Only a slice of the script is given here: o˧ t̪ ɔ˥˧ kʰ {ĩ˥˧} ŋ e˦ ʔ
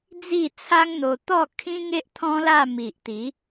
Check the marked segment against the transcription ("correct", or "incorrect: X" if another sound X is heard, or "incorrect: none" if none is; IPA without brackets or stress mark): incorrect: ĩ˦